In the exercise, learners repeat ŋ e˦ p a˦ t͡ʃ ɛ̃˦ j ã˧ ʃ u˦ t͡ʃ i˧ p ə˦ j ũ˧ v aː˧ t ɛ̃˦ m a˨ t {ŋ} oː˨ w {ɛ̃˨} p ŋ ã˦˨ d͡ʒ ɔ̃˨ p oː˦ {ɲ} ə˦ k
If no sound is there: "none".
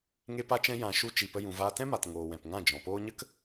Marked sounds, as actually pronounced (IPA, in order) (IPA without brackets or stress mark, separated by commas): ŋ, ɛ̃˨, ɲ